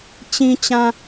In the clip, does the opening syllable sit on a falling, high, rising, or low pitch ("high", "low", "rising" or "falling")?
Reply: low